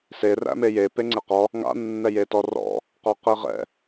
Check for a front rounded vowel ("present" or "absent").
absent